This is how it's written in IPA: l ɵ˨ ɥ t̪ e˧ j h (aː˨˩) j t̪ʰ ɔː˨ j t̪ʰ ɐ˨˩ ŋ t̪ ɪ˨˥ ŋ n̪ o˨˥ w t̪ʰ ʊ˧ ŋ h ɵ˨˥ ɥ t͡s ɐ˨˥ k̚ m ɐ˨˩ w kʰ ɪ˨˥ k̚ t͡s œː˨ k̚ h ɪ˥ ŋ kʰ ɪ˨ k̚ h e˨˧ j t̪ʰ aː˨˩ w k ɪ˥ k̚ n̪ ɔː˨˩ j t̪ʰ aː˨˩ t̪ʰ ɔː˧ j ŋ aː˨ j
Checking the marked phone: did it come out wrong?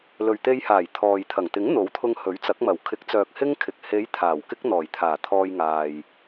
no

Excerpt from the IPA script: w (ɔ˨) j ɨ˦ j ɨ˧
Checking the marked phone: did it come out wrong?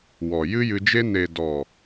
no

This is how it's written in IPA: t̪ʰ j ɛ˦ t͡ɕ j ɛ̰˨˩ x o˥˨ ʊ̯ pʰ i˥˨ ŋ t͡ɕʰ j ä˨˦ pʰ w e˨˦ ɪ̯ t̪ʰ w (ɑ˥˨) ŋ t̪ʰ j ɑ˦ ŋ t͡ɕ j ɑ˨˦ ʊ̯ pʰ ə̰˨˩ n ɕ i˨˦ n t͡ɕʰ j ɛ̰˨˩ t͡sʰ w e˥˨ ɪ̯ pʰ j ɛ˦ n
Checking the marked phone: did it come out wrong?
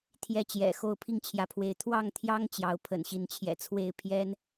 no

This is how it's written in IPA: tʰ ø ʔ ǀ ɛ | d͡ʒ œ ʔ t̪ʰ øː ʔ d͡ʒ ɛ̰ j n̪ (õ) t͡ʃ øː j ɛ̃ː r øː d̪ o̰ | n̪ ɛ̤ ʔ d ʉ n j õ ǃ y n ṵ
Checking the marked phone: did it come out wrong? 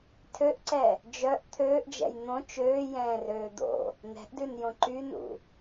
no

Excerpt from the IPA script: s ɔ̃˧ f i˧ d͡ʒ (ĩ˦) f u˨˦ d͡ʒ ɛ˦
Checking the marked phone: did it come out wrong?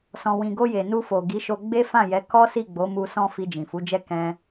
yes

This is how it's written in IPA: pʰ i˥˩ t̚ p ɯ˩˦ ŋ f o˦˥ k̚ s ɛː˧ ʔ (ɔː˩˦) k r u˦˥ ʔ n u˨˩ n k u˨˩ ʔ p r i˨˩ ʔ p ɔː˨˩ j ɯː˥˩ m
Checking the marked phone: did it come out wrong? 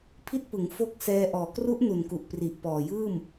yes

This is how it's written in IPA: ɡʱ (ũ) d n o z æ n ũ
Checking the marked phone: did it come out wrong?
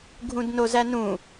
no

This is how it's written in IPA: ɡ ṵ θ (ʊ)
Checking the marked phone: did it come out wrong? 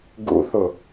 no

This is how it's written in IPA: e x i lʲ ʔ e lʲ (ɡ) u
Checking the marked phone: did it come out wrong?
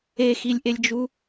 yes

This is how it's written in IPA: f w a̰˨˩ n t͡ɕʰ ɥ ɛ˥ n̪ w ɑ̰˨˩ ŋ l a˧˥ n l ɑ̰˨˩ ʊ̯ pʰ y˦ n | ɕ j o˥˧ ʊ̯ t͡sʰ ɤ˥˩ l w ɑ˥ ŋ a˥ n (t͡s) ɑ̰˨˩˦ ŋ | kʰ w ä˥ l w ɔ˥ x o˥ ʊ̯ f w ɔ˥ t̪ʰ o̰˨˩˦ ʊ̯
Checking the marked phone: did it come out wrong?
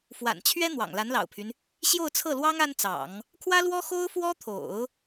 no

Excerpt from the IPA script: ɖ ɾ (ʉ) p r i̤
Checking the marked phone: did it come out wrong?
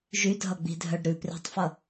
no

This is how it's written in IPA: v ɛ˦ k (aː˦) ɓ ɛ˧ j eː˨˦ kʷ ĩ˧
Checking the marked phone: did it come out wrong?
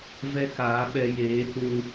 yes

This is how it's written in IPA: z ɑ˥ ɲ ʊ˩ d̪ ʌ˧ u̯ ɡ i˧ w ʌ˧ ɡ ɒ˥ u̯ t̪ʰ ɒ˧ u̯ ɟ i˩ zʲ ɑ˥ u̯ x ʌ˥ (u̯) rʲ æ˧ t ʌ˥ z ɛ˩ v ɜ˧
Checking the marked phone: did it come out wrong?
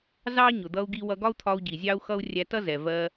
no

